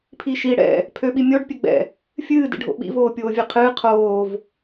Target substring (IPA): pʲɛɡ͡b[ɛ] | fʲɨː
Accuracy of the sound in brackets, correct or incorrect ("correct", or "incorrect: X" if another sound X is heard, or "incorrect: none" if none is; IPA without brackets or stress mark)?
incorrect: ɛ̰